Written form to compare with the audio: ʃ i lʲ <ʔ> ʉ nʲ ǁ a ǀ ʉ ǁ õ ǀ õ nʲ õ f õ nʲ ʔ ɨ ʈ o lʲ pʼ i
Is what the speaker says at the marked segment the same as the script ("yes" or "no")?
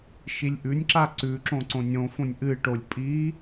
yes